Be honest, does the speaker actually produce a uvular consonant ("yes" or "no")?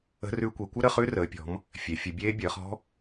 yes